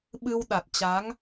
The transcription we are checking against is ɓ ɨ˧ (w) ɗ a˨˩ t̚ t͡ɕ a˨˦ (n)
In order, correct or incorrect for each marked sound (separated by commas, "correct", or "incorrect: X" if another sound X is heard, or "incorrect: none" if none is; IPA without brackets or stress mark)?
correct, incorrect: ŋ